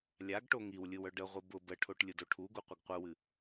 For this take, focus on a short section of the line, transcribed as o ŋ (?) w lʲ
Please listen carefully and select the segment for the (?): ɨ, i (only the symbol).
i